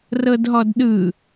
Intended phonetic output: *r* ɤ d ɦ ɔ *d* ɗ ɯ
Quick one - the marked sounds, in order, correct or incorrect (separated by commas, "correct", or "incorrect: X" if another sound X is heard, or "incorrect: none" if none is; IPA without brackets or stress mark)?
correct, correct